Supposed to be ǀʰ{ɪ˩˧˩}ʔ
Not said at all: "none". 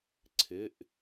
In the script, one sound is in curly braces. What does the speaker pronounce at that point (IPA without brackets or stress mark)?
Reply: ɪ˩˧˩